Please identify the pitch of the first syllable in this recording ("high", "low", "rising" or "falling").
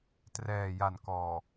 low